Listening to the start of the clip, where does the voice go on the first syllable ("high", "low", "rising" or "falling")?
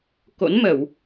rising